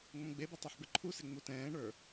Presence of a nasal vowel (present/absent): present